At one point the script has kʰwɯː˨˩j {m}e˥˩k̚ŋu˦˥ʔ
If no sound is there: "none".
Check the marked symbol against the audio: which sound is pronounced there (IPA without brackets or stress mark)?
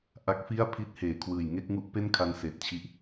ŋ